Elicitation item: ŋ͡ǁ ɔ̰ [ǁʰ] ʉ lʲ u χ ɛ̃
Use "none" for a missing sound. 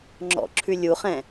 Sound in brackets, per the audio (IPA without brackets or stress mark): ǁʰ